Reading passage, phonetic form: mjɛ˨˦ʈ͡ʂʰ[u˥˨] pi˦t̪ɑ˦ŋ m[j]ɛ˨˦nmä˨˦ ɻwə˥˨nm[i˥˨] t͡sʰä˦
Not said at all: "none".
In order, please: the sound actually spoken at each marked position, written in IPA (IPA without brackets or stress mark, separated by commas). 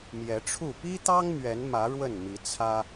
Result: u˥˨, ɥ, i˨˦